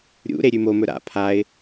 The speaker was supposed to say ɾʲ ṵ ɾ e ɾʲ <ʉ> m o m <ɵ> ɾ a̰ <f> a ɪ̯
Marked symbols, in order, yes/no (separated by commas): yes, yes, no